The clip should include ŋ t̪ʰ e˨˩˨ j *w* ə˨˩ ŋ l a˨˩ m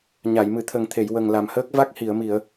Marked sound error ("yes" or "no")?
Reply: no